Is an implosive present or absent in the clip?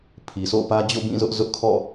absent